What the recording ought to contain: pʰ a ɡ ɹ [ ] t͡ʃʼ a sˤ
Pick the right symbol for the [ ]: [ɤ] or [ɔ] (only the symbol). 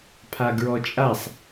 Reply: ɔ